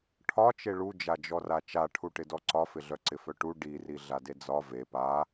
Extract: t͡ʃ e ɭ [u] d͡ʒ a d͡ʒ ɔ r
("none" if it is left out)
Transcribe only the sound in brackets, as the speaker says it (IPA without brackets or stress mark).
u